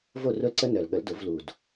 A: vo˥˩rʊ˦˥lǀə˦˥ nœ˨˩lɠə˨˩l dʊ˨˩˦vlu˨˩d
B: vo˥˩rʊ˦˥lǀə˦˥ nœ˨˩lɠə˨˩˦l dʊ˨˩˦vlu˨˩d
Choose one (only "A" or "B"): B